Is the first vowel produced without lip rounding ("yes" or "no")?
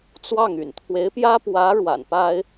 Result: yes